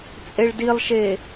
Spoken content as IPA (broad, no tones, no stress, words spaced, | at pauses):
t͡sʼeɭdilˠʃe